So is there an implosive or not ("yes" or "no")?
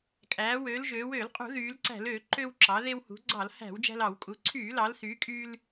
no